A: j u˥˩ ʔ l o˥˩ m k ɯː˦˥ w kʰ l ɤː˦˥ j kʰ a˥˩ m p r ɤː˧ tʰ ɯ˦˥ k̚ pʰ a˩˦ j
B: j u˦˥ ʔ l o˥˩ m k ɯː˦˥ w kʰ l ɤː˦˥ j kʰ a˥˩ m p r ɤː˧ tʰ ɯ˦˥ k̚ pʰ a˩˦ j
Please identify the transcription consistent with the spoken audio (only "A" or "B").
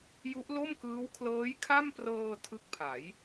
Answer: B